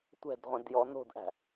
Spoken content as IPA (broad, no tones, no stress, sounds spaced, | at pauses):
tʷ ɛ̤ d ʁʷ ẽ d j ɔ n o̤ d ʔ æ̤